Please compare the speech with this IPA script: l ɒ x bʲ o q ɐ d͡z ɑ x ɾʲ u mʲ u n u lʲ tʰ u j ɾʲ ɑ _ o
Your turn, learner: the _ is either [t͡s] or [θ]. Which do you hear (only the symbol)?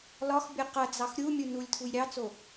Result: t͡s